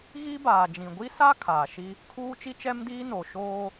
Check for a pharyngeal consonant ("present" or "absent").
absent